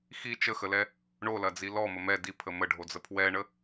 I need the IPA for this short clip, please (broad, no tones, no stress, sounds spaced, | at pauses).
x i t͡ʃ ə x ə l ɛ | ɳ o l ɐ d͡z i l ɔ m ə m ɛ d i pʰ ə m ə ɖʱ o d͡z ə pʰ w ɛ ɳ ə